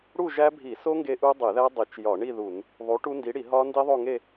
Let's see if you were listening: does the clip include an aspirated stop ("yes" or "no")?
no